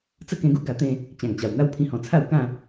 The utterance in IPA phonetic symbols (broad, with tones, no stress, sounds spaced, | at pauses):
t͡s ə˥˧ k ẽ˧ ɡ u˦ ɡ a˧ t̪ ẽ˥˧ | t͡ɕ ã˨˩ ŋ t͡ɕ a˨˩ w n̪ a˥˧ w pʰ ĩ˧ h ɔ̃˨˩ t͡sʰ a˥˧ w k ã˥˧